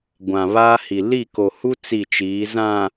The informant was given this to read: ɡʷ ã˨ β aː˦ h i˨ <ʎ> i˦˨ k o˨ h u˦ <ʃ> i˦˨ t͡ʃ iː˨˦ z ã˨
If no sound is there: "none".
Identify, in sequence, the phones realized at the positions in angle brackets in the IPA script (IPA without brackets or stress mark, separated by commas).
l, t͡s